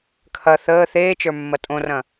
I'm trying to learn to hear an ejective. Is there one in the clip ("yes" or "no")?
yes